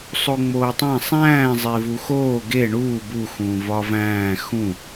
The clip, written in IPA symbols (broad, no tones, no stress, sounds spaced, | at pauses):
sˤ o ŋ͡m oː tˤ æ̃ sˤ æ̃ː zˤ e v u x oː ɡ e ɳ uː b u x ũː v ɒ v æ̃ː x ũ